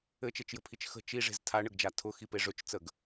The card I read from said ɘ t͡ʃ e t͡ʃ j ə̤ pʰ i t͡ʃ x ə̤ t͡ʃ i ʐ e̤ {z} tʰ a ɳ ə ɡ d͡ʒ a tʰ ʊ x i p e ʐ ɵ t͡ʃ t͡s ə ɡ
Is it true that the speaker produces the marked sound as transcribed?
yes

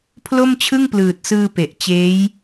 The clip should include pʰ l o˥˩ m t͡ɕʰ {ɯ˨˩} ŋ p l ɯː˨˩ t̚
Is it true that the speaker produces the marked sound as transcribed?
no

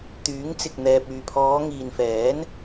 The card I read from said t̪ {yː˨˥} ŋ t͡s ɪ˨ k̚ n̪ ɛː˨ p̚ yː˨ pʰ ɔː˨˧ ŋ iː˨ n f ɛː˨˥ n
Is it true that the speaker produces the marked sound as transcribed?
yes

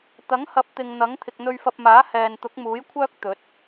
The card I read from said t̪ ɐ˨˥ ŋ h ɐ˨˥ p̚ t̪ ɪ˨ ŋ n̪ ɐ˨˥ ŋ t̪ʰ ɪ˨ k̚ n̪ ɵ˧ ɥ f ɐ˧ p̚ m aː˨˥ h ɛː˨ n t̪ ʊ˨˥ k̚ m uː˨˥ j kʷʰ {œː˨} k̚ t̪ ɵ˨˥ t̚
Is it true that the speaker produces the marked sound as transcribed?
no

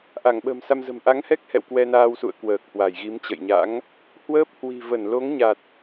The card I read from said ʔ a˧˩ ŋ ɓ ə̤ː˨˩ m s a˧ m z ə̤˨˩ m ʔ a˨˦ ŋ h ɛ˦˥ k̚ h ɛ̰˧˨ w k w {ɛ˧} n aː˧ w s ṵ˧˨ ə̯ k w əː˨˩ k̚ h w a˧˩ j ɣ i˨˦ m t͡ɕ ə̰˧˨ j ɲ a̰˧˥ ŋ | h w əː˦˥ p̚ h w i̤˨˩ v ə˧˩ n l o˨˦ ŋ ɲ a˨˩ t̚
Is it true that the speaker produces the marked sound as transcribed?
yes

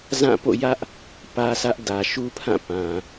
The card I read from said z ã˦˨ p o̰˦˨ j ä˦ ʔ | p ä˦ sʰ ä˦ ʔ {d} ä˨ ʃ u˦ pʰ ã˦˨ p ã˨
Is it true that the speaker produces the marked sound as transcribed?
yes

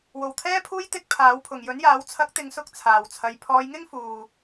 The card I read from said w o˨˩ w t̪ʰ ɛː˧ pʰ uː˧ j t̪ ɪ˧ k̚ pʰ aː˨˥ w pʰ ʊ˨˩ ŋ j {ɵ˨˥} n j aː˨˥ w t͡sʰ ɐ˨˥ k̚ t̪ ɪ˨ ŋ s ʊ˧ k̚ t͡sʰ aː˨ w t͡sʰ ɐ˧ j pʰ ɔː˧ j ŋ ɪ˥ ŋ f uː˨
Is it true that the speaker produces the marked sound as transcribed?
yes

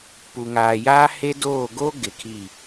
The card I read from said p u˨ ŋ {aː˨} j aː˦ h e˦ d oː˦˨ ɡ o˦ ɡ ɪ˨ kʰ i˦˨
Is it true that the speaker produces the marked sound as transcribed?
yes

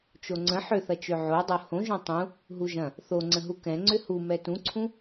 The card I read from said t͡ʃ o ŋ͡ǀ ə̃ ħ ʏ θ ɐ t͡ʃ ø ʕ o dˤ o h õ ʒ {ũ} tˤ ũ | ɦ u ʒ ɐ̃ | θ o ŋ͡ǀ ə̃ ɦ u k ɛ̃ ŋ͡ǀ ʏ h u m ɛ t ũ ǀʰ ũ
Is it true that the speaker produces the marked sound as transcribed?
no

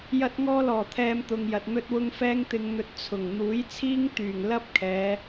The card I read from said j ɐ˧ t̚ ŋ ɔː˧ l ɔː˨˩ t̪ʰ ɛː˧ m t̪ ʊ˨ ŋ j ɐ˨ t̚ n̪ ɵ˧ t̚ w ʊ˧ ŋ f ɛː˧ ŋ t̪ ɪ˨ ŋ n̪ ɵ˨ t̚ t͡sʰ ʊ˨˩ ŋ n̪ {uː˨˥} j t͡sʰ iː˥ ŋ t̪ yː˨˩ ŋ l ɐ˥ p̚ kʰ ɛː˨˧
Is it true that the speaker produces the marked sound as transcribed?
yes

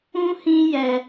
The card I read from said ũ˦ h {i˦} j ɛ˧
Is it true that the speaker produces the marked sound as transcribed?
no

